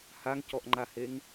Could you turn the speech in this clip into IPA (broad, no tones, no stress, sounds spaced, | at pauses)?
h a ŋ c ɔ ʔ ŋ͡ǃ a h e ŋ